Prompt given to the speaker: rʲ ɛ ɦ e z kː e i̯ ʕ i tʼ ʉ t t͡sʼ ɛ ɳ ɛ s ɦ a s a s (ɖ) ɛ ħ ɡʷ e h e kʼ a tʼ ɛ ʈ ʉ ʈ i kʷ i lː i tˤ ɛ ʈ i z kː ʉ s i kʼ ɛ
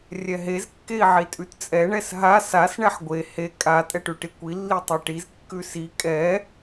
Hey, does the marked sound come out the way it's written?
no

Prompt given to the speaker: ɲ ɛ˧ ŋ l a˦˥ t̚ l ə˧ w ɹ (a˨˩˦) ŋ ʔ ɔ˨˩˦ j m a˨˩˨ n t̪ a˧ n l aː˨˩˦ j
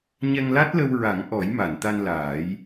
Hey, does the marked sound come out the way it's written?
yes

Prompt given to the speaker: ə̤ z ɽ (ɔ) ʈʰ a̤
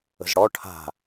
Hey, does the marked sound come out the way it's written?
yes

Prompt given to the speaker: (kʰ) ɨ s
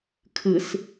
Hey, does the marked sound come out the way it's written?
yes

